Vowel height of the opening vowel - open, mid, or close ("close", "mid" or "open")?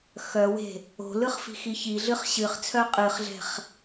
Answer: mid